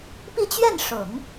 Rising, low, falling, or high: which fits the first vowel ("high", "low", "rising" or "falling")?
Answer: falling